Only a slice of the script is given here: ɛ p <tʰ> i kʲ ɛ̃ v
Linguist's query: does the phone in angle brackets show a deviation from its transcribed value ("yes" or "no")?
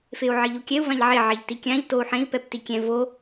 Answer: yes